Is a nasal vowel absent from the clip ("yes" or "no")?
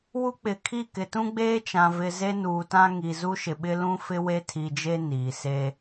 no